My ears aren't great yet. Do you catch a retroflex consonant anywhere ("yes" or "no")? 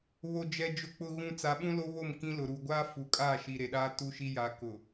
no